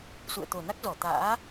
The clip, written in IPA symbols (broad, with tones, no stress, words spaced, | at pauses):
sṵ˧˨ə̯t̪o˨˩na˦˥k̚zɔ˧˩ t̪a̰ː˧˥